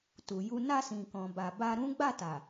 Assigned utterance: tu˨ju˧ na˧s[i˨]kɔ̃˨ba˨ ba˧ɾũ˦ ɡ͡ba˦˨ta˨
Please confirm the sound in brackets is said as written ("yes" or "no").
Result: no